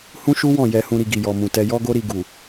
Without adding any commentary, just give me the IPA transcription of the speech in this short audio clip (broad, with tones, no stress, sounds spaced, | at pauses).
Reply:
h ũ˦ ʃ u˦ w ɔ̃˦˨ j ɛ˧ h ũ˧ ɾ i˧ ɡ i˨ j ɔ˨ m ũ˨ t ɛ˧ j ɔ˦ ɡ o˦ ɾ i˧ ɡ u˨